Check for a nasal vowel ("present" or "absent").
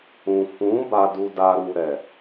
present